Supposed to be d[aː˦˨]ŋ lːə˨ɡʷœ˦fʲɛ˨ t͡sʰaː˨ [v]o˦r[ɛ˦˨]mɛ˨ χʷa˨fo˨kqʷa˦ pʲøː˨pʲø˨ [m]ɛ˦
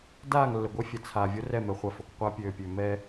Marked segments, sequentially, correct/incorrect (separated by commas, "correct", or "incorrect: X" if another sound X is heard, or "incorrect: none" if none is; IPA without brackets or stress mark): correct, incorrect: vʲ, correct, correct